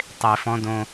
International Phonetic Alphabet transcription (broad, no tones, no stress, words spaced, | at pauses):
tˤe fɔ̃ dõ